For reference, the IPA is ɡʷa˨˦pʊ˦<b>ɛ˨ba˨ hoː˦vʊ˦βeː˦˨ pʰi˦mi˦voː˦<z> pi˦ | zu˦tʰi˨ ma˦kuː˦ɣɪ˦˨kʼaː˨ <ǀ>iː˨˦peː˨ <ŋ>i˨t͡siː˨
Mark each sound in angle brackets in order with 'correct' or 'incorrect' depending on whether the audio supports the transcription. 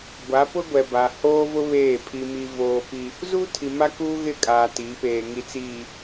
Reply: incorrect: ɡʷ, incorrect: none, incorrect: t, correct

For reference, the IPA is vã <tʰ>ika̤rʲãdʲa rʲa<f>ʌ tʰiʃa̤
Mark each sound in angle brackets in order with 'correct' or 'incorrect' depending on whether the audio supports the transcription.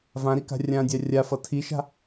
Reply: incorrect: ɾ, correct

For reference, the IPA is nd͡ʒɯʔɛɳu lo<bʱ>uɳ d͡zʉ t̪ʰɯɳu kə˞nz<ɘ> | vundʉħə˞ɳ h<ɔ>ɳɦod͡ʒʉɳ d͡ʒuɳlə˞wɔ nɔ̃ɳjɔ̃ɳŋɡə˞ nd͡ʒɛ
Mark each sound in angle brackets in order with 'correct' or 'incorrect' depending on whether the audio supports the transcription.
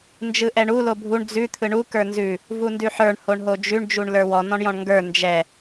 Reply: correct, incorrect: ʉ, incorrect: o

